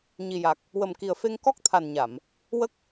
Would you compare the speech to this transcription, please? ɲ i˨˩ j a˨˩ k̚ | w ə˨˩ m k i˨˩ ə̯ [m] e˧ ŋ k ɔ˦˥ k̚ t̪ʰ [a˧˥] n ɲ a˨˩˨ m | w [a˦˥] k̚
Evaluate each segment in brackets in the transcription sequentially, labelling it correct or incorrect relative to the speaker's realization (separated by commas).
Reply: incorrect, incorrect, incorrect